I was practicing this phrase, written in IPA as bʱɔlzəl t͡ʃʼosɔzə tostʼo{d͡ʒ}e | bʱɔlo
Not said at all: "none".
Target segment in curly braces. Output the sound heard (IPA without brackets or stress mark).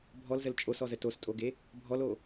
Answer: ɡ